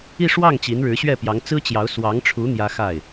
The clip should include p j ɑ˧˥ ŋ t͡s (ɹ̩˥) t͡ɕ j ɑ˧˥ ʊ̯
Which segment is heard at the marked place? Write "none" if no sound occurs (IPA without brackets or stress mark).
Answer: ɹ̩˥